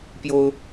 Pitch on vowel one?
high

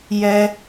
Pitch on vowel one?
high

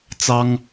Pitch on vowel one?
high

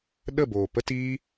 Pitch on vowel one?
falling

